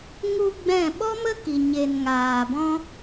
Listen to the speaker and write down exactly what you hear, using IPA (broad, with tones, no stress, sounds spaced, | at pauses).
ŋ u˧ ɡ͡b ɛ̃˦˨ ɓ ɔ˦ m ə˦ k i˨ ɲ e˨ n ŋ aː˨ b ɔ̃˦